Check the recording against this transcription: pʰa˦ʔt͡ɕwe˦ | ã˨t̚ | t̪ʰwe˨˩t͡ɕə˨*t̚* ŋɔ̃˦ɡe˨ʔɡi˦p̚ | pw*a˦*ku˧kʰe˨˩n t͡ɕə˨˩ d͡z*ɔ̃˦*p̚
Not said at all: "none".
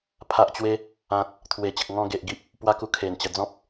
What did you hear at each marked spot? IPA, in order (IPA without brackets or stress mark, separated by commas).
k̚, a˦, ɔ̃˦